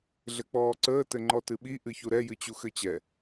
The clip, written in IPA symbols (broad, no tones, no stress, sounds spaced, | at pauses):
ɮ ɘ k͡p ɔː ǀ əː t ɘ ŋ͡ǃ ɔ t ɨ ɓ i ʔ ɨ ç u ɾ ɛ j ɨ t͡ɕ u x ɘ t͡ɕ ɛ